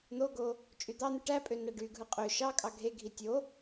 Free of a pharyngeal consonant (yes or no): yes